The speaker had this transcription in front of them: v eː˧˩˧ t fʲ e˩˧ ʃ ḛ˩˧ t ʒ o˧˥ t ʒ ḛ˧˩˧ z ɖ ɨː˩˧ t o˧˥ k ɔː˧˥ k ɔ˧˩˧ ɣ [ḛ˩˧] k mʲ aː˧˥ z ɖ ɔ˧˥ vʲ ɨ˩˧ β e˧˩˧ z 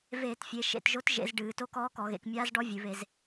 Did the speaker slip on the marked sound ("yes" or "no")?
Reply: no